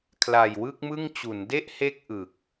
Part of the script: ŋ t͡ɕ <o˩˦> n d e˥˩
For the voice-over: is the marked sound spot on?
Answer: no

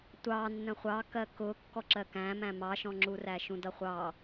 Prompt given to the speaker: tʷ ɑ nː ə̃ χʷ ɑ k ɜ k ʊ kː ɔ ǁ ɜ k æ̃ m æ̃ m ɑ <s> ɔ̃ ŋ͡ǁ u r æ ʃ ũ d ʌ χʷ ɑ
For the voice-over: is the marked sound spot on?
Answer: no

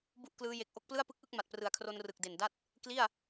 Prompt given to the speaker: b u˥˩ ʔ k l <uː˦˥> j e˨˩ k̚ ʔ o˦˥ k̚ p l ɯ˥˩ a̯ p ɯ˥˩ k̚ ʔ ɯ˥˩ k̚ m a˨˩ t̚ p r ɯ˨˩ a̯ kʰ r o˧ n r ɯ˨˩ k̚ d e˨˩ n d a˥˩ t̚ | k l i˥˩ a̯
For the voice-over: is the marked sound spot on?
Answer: no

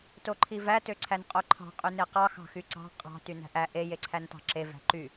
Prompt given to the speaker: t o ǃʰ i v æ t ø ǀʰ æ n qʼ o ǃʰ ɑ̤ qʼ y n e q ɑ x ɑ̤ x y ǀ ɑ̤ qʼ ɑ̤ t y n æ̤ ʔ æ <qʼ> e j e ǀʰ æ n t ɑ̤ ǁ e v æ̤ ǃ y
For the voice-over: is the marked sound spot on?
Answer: no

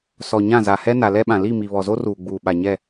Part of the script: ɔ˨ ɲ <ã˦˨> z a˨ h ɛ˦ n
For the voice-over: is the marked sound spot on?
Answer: yes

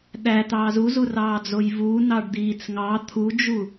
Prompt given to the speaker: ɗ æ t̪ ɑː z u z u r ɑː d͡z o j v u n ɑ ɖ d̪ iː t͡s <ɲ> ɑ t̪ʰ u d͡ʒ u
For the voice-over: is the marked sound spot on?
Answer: no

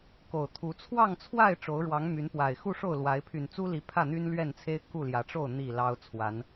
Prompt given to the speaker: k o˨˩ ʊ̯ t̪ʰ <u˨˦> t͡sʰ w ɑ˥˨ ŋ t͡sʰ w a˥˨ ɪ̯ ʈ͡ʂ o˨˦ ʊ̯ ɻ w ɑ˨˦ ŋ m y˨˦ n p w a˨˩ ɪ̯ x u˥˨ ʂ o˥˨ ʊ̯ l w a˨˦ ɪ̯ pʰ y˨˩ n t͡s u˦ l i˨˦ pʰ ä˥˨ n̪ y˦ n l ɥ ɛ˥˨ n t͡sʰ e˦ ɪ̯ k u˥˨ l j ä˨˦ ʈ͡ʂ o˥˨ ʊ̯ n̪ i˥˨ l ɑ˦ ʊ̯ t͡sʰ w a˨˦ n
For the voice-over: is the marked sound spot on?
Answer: yes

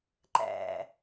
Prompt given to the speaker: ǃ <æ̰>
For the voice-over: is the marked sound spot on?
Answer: yes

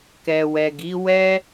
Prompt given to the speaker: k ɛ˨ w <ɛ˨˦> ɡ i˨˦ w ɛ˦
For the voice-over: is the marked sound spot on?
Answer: no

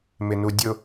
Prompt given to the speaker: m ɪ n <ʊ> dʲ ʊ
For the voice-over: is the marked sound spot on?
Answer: no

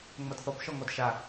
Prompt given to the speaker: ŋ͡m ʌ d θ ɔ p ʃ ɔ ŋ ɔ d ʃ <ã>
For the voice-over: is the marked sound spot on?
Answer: no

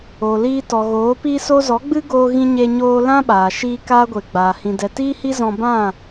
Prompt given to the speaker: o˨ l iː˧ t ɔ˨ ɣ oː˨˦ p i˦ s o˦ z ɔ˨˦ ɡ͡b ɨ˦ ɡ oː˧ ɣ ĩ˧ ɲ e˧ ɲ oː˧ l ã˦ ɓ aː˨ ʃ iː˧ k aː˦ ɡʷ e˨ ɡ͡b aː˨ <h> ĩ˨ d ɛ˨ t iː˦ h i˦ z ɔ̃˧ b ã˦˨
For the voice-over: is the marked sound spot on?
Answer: yes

